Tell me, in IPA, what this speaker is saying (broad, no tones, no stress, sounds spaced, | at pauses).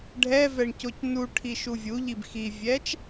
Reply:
ɖʱ ɛ v ɛ ɳ c o c n u ʈʰ i ʃ u vʲ u ʎ i b x i vʲ ɛ t͡ʃ